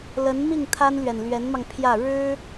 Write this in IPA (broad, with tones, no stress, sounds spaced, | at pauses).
l ə˧˥ n m i˥˩ ŋ t̪ʰ a˥ n l ɥ ɛ˨ n l ɥ ɛ˧˥ n m ɑ˧ ŋ pʰ j ä˥˩ ɻ ɻ̩˥